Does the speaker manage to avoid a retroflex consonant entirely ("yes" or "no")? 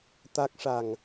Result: no